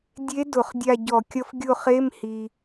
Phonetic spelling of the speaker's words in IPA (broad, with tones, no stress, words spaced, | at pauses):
dʲe˧˥ dʊ˧˩˧χdʲa˦˨ ɟɔ˧˩˧kʲʌ˧˥f ɡʲʊ˦˨χe˧˥˧m hi˩